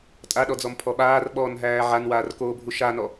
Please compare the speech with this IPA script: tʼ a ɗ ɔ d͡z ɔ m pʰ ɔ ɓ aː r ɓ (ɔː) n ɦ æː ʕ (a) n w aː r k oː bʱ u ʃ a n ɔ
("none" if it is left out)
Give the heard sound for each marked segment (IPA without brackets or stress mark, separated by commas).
ɔː, a